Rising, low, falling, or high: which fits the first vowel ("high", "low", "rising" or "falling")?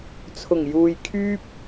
low